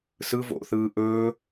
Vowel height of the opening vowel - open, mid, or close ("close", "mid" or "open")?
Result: close